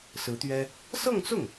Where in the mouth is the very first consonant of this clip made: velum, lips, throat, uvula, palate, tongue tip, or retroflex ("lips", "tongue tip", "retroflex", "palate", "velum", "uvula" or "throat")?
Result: tongue tip